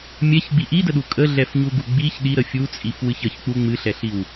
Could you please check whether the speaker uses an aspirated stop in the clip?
no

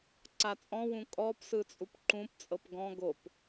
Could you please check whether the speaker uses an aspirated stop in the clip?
no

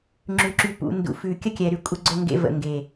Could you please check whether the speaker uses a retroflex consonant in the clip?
no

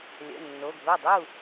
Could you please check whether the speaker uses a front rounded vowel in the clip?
yes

